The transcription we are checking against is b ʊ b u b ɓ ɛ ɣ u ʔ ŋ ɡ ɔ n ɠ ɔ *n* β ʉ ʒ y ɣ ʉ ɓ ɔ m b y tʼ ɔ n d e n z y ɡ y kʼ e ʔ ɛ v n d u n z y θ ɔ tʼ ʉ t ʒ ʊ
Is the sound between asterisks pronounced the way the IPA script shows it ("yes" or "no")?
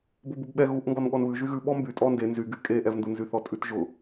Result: yes